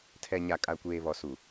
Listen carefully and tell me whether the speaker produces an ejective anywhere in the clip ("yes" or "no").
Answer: yes